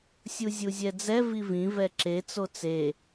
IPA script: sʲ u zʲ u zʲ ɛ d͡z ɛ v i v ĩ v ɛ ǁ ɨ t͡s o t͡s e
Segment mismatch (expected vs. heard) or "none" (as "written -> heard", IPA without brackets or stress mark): ɨ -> e